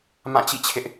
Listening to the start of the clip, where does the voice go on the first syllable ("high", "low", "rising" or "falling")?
falling